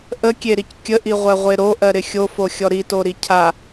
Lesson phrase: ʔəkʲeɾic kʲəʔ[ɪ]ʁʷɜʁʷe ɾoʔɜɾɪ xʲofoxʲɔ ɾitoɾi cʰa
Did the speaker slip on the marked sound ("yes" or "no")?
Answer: yes